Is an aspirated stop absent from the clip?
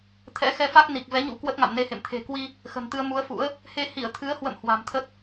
no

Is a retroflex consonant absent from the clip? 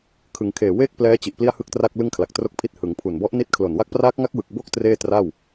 yes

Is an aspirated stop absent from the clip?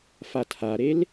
no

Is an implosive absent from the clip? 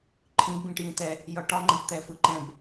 yes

